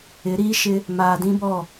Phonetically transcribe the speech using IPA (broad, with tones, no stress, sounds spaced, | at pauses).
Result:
ɪ˨˦ ɾ iː˦ ʃ ɪ˦ | m aː˨ d ĩ˦ b ɔ˦˨